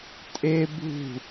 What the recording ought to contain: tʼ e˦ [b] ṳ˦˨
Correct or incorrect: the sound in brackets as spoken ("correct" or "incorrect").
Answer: correct